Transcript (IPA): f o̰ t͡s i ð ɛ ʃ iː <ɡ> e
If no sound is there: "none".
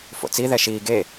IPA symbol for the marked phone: ɡ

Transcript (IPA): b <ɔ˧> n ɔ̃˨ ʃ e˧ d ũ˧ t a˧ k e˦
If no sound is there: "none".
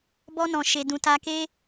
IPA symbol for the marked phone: ɔ˧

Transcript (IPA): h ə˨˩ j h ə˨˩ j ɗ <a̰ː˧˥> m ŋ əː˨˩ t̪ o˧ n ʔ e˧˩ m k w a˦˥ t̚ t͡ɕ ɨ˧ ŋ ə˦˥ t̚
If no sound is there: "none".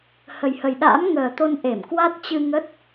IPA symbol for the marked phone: a̰ː˧˥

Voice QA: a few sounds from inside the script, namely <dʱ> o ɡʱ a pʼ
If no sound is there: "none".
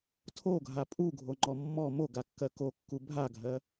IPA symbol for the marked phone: tʰ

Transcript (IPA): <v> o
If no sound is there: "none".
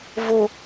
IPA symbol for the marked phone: v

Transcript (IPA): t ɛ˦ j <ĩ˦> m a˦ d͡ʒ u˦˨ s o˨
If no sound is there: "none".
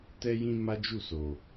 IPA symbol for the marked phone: ĩ˦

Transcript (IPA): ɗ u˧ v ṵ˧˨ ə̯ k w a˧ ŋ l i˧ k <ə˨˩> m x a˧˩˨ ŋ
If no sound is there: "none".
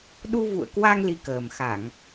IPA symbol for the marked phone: əː˨˩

